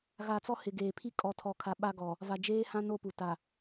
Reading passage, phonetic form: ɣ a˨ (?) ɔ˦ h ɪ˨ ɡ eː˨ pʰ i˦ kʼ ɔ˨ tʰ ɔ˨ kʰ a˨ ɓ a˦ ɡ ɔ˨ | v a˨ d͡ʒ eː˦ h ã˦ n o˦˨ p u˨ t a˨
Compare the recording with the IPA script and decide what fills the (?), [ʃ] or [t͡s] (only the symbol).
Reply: t͡s